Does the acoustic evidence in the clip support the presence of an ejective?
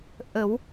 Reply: no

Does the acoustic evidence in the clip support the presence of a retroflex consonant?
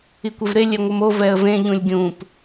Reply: no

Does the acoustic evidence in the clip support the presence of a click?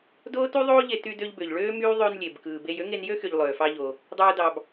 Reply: no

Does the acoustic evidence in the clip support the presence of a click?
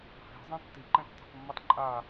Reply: yes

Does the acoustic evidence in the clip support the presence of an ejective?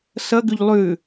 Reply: no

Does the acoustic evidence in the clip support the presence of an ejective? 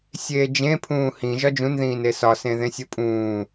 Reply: yes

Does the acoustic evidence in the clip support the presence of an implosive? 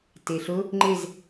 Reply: no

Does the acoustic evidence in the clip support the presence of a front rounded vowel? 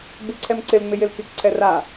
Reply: no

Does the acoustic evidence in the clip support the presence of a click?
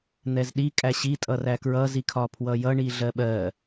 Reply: no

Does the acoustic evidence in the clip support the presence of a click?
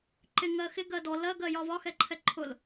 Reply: yes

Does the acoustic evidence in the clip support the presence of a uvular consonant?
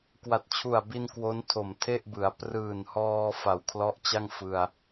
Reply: no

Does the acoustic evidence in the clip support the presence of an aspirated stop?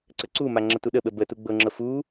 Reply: no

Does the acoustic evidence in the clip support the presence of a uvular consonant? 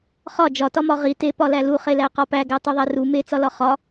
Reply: yes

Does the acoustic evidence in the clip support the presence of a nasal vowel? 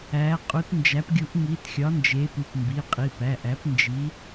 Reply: no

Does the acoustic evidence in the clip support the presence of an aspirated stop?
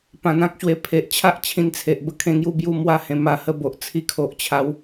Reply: yes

